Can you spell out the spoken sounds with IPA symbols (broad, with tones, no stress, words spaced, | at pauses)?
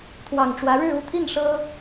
t̪ʰwɑ˨˩ŋʈ͡ʂwä˨˦ɻɻ̩˥˨ u˥˨t̪ʰi˥˨n ʂɤ˦